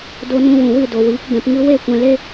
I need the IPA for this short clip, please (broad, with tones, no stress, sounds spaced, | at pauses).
d o˧ n ũ˧ w ũ˨ w ɨ˦˨ d o˨ w iː˨˦ k b ɛ̃˧ p ŋ ɨ˦ w e˦˨ kʷ ɛ̃˧ l e˦